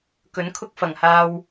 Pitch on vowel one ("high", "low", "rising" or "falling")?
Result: rising